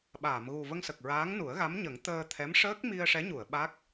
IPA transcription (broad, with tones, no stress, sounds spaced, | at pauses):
ɓ aː˨˩˨ m ɣ u˨˩ v ə˧ ŋ s ə˨˩ k̚ ɹ aː˧˥ ŋ n u˨˩˦ ə̯ ɣ a˧˥ m ɲ ə˨˩˦ ŋ t̪ əː˧ t̪ʰ ɛ˧˥ m ʂ əː˦˥ k̚ m i˧ ə̯ ʂ ɛ˧˥ ɲ u˨˩˨ ə̯ ɓ a˦˥ k̚